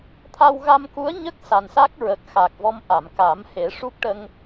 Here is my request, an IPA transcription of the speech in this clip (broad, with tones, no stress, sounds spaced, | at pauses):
t̪ʰ a˧ w ɣ a˧ m k u˧˥ ə̯ ɲ ə˦˥ k̚ s a˨˩ n s a˦˥ k̚ ɹ ə˨˩ k̚ x a˨˩ k̚ v ɔ˧ m ʔ a˨˩˨ m k a˨˩˦ m h e˨˩˦ ʂ u˦˥ k̚ ʈ ə˧ ŋ